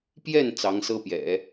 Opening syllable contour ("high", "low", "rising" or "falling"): falling